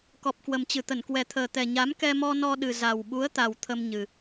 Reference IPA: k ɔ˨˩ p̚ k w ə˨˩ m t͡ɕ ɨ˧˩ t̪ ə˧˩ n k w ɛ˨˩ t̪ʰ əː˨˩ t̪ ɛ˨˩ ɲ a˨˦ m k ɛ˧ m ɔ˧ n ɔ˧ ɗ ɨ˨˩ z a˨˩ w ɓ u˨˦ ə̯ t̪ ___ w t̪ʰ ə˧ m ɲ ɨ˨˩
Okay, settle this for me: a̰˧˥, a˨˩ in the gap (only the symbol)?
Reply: a˨˩